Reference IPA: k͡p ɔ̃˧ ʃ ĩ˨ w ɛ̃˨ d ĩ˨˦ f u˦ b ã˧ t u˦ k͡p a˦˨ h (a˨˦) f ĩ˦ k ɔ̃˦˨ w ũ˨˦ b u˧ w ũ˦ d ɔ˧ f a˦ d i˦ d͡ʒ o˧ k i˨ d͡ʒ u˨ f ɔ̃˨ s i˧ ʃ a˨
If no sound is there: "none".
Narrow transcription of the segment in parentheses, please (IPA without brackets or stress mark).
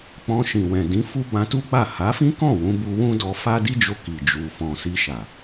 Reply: a˨˦